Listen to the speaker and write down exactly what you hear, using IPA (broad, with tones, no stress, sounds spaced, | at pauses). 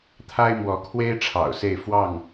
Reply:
t̪ʰ a˦ ɪ̯ m w ɔ˨˦ kʰ w e˦ ɪ̯ ʈ͡ʂʰ ɑ̰˨˩ ʊ̯ s e˥˨ ɪ̯ f w ɑ˥˨ ŋ